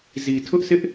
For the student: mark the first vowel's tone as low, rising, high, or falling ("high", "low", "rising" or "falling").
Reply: low